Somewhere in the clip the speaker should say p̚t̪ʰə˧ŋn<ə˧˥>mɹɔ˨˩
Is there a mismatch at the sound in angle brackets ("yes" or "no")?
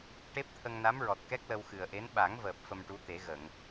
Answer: yes